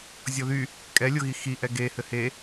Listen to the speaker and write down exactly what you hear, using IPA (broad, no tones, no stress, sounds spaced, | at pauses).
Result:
zʲ ɔ ð y | kʼ ɛ lʲ o ɣ i x i ʔ ɛ ɡ e h ɘ h e